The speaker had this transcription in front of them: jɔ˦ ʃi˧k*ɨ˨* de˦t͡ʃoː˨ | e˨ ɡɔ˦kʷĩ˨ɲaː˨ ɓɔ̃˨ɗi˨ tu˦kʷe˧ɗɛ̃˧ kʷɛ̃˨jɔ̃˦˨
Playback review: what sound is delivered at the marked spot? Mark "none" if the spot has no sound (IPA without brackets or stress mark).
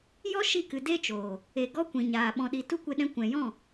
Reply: ɨ˨